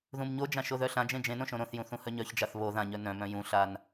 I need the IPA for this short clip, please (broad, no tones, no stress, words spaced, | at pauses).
ðũmɲod͡ʒã ʃoðœɬãd͡ʒẽ d͡ʒẽnõ ʃõɾõθjũ θũhœɲœçd͡ʒaθ βo ðãɲœ nœ̃mœ̃ jũɬan